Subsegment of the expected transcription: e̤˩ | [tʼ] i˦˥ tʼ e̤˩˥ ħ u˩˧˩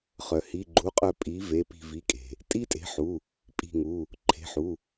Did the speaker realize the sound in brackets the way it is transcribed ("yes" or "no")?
yes